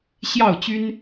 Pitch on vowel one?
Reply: falling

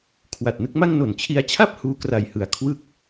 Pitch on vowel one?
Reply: low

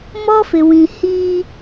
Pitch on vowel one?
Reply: high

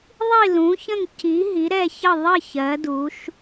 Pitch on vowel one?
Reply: falling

